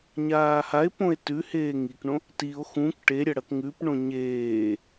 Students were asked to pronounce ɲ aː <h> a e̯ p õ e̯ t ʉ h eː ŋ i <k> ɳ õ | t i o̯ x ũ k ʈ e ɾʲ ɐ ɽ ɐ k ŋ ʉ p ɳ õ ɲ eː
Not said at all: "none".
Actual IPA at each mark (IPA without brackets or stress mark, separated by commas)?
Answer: h, k